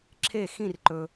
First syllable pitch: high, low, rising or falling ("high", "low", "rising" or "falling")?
falling